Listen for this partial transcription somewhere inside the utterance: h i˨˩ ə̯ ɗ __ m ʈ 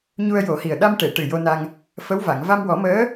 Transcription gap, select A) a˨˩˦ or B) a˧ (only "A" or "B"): B